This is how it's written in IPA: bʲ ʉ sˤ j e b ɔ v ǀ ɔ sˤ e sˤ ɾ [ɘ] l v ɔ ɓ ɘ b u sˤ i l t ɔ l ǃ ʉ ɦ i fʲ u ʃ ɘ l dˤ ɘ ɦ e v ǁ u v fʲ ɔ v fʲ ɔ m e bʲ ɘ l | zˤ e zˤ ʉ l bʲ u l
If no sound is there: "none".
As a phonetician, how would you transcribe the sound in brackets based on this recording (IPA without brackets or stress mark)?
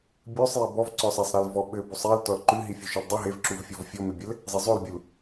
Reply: ɘ